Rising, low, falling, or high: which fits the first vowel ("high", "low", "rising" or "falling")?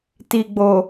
low